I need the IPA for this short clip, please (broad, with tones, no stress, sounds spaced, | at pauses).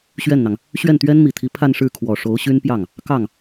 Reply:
ɕ ɥ ɛ˥˩ n n̪ ɑ˩ ŋ | ɕ ɥ ɛ˥˩ n t̪ ɥ ɛ˥ n m i˨˩ t̪ʰ i˧˥ pʰ a˥˧ n ʂ ɻ̩˥˩ kʰ w ɔ˨˩ ʂ o˧˥ ʊ̯ ɕ y˥ n p j ɑ˥˩ ŋ | k ɑ˥˩ ŋ